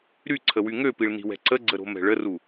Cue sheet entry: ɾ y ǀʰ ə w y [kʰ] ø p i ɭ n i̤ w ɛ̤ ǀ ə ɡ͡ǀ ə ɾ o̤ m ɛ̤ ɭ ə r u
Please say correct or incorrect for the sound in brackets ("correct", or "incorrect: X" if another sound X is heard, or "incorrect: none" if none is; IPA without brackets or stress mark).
incorrect: ŋ